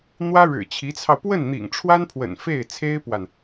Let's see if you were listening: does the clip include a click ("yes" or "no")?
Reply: no